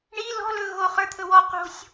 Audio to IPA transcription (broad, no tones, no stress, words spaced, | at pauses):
ɳi lɔ̤lɵ ɣo χə˞t̪ʰɵwɔ qo̤sʲ